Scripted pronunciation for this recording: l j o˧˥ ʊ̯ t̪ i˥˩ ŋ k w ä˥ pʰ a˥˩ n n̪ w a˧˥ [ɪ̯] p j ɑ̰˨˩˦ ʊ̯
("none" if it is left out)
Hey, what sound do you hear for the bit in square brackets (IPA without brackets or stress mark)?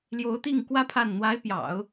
ɪ̯